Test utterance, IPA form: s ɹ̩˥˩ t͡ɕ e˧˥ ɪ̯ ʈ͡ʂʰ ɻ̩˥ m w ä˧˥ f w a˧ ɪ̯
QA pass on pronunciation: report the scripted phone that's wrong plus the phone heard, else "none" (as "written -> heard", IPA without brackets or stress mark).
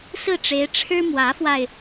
t͡ɕ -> ʈ͡ʂ